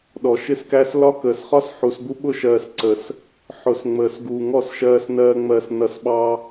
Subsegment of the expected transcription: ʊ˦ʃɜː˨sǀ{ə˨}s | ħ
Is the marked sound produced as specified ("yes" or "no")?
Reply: yes